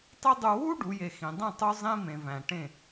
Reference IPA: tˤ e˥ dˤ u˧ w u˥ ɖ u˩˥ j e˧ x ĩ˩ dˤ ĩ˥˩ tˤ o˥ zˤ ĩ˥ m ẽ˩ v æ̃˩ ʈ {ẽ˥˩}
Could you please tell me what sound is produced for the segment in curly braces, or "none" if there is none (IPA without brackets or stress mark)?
ẽ˥˩